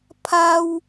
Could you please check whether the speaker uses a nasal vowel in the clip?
no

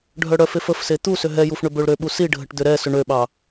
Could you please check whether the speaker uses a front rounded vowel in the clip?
yes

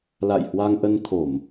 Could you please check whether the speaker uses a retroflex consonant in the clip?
no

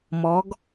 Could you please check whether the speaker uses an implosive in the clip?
no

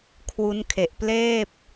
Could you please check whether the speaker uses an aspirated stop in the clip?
yes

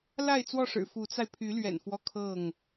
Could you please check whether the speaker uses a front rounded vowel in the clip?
yes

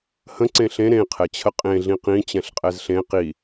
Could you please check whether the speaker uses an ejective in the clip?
yes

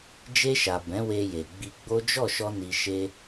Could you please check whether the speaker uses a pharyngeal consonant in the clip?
no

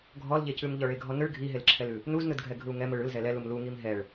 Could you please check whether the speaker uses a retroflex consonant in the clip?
yes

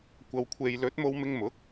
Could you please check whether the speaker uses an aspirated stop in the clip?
yes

